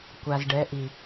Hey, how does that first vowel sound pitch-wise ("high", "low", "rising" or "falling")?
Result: low